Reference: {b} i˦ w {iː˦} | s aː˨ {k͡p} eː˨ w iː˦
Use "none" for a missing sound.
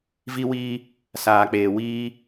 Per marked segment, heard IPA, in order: v, iː˦, k͡p

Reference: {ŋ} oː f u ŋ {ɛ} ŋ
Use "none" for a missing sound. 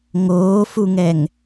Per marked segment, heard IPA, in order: ŋ, ɛ

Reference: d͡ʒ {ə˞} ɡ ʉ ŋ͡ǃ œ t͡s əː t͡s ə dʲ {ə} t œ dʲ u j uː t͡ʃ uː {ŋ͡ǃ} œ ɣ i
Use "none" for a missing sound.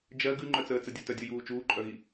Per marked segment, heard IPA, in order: ɜ, ə, ǃʼ

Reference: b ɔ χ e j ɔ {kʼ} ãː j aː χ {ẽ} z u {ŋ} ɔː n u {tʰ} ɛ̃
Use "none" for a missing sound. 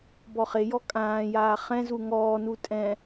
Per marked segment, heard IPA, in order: kʼ, ɛ̃, ŋ, tʼ

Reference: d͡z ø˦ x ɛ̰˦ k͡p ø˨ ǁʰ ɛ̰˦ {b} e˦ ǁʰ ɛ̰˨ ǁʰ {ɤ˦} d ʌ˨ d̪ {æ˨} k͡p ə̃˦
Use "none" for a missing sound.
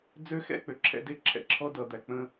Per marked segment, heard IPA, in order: d, ɔ˦, æ˨

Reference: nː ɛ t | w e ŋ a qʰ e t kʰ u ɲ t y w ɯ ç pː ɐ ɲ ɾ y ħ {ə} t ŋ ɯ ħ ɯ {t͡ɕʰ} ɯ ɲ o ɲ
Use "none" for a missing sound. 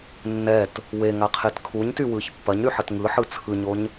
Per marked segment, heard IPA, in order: ə, t͡sʰ

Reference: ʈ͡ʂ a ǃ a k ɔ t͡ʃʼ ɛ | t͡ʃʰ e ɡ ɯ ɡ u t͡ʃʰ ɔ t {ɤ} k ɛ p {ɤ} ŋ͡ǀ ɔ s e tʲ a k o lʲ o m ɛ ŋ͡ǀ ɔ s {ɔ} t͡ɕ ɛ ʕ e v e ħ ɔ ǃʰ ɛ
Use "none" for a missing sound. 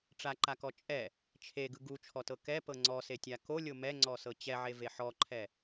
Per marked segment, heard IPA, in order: ɤ, ɤ, ɤ

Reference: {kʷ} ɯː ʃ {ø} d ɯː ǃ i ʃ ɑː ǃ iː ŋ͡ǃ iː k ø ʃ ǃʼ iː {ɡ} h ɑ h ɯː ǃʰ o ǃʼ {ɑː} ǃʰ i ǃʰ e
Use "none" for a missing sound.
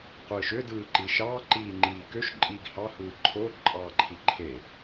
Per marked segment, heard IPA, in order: qʷ, ø, ɡ, ɑː

